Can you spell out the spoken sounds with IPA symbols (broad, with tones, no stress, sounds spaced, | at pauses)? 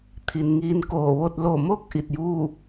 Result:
t̪ʰ i˩ n ŋ iː˧ n k oː˧˩ ʋ o˥˨ t̚ l o˧˩ m o˥˨ k̚ ʔ i˧˩ t̚ j uː˥˨